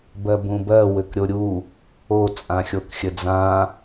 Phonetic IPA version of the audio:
b ɜ b ũ b ɜ w ɘ k ɾʲ o ɾʲ u | o t͡sʼ ã xʲ o k xʲ ɘ d͡z ã

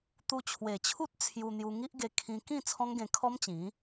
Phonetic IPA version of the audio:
t̪ u˧ t͡ɕʰ w e˨˩ t͡ɕʰ u˦ t̚ t͡sʰ j u˧ n̪ j u˧ ŋ i˦ ʔ ɡ e˧ kʰ ĩ˧ k ĩ˥˧ t͡sʰ ɔ̃˦ ŋ ɡ ẽ˧ kʰ ɔ˦ m t͡ɕ ĩ˨˦

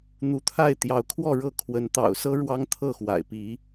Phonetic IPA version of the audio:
n̪ u˨˦ t̪ʰ a˥˨ ɪ̯ t̪ j ɑ˨˦ ʊ̯ kʰ w ɔ˥˨ ɻ ɤ˥˨ kʰ w ə˨˦ n t̪ ɑ̰˨˩ ʊ̯ s ɤ˦ ɻ w ɑ˦ ŋ t̪ʰ ɤ˥˨ x w a̰˨˩ ɪ̯ p i˨˦

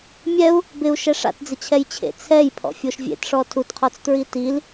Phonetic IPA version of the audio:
mʲ ɛ u̯ | b ɪ u̯ ʃ ɛ ʂ a̰ t d͡z ɪ t͡ɕʰ ɛ j t͡ɕʰ ḛ t͡sʰ ɛ j pʰ ɔ̰ fʲ o ʃ vʲ ḛ t ʂ ɔ tʰ u t qʰ ɔ t͡s t ɹ i t i l

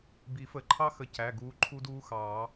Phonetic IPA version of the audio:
b i˨˩˦ f ə˨˩˦ ǃʰ ɑ˦˥ x ə˨˦ c æ˩˧˩ ɡ uː˨˦ ǃʰ u˦˥ d uː˦˥ x ɑː˨˩˦

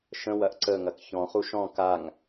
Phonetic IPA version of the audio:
ʃ ə̃ w ɐ ʔ ǀ ə ŋ ɐ k ç ɔ̃ χ u ʃ ɔ̃ k a ŋ

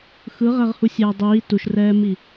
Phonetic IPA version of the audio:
x ɯ ʁ ɛ ʁ h u sʲ ɛː dˤ iː t u ʃ r ɛː m i

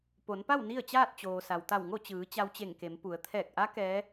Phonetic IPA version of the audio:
p o˩˧ n p a˥˨ w n i˥˨ ə̯ t͡ɕ aː˥˨ t̚ t͡ɕ oː˩ s a˩ w t̪ a˧˩ w ŋ o˥˨ t͡ɕ ɯː˩˧ t͡ɕ a˧ w t͡ɕ e˧˩ ŋ k e˩˧ m p u˩˧ ə̯ t̪ʰ ɛː˧˩ k̚ ʔ a˧˥ k ɛː˧˥

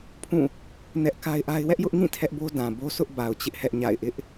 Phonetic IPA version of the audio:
pʰ ũ˦˨ | n ɛ˦ ʔ k a˦ ɪ̯ ʔ a˦ ɪ̯ w ɛ˦ ʔ j ʊ˦ ʔ ŋ ĩ˦˨ tʰ ɛ˦ ʔ b o˦ d ã˨ b o˦ sʰ ʊ˦ ʔ b a˨ ʊ̯ t͡ɕ ɪ˦ ʔ h ɛ˦ ʔ ɲ a̰˦˨ ɪ̯ ʔ ɪ˦ ʔ

